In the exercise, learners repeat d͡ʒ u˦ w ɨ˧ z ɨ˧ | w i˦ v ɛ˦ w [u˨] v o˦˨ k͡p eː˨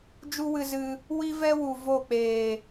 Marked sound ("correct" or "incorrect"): correct